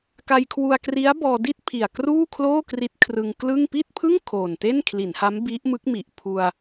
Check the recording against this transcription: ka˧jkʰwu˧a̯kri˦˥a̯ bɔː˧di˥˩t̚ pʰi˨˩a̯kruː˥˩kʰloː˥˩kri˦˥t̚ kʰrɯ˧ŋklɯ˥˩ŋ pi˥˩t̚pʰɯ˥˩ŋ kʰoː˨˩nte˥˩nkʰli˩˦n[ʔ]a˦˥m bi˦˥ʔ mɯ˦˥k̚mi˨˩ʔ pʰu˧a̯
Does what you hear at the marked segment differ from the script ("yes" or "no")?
yes